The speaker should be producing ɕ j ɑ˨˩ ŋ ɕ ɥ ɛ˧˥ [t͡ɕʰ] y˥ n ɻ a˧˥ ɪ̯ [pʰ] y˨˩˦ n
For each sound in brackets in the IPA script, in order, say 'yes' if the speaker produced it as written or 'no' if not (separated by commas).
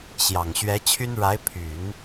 yes, yes